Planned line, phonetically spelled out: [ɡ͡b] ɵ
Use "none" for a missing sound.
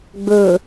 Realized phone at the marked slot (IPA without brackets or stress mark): ɡ͡b